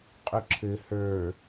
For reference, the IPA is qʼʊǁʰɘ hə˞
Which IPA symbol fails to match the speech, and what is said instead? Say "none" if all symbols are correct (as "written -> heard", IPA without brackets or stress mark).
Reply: none